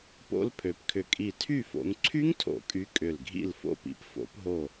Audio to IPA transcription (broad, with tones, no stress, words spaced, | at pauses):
po̰˦˥lpʰø˨˦pkʰʏ˧˩ kʼi˧˩tʰy˥˨fo̰˨˦ŋ ǀʰy˦˥ŋtʰo̰˨˩˦kʼy˨˦ kʼʏ˧˩lɡʱḭ˥˨l fo̰˧˩pḭ˨˦pfo̰˨˩˦pɦo˧˩